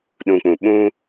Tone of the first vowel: low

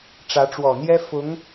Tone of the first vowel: rising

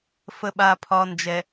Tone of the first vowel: low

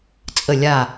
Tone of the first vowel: falling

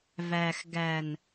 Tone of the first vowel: low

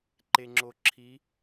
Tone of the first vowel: low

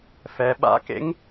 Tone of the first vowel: low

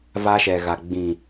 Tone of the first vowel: high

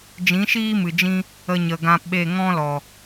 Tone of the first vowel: rising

